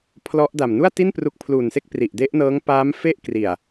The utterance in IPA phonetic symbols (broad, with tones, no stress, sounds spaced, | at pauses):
pʰ l ɔ˦˥ ʔ d a˨˩ m n u˥˩ a̯ t i˥˩ n p r u˦˥ k̚ pʰ l uː˨˩ n s e˥˩ k̚ p r i˨˩ ʔ d e˦˥ ʔ n ɤː˦˥ ŋ p aː˦˥ m f e˥˩ ʔ k r i˨˩ a̯